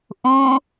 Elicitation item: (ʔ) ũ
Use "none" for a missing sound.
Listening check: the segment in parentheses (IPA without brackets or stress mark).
ʔ